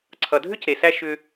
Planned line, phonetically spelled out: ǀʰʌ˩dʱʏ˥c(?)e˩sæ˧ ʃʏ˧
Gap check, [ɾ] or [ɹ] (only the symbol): ɾ